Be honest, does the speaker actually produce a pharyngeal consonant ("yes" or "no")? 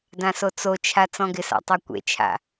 no